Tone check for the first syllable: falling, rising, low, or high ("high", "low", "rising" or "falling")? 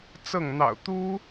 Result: falling